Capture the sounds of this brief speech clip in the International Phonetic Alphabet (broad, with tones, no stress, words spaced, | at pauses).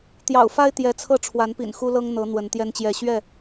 t̪jɑ̰˨˩ʊ̯fa˦ɪ̯ t̪jɛ˨˦t͡sʰɤ˥˨ ʈ͡ʂʰwa˨˦npḭ˨˩n xu˦lɤ˦ŋ n̪ɤ˨˦ n̪wə˨˦nt̪jɛ˦nt͡ɕjɛ˥˨ ɕɥɛ˥˨